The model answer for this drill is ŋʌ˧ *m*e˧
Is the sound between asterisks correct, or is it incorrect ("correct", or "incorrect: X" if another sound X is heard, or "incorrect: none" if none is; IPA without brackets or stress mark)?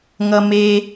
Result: correct